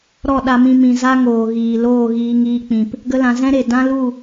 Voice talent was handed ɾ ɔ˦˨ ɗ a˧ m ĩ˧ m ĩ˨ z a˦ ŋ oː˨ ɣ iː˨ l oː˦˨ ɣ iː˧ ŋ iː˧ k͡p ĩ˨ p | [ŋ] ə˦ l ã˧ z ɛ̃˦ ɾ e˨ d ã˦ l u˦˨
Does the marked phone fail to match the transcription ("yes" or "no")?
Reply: yes